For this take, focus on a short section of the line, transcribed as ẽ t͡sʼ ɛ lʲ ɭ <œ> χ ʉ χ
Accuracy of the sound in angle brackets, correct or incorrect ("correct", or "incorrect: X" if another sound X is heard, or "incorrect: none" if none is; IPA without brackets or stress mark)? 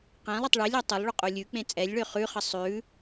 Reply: incorrect: ø